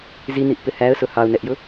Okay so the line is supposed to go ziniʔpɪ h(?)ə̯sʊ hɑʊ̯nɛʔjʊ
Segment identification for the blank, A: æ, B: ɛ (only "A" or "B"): A